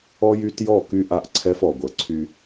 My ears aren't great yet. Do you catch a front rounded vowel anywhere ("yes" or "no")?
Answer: yes